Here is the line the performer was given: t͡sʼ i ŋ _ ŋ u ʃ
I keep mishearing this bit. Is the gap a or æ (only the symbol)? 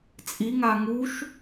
a